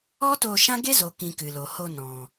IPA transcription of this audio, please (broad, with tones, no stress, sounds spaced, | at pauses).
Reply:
ɔ˦ t o˧ ʃ ã˦ ɡ e˦ z o˨ k ĩ˨ k ɨ˨ l o˨ h o˧ n ɔ̃˨